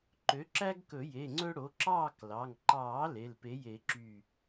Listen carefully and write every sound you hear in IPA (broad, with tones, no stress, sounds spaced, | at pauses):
ǃ ø˩˥ ǁ æ˦ ɡ k ɵ˨˩˦ j e˩˧˩ ŋ͡ǀ ɵ˦ ɽ o˩˥ ǁ ɑː˥˨ k l ɑ˩˧˩ ŋ ǃ ɑː˨˩˦ l e˩˧˩ l p e˩˥ j e˨˩˦ ǁ y˧˩